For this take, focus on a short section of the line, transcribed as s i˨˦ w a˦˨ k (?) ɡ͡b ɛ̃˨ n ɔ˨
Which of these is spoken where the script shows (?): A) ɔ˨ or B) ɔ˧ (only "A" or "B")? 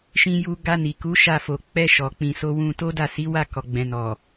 A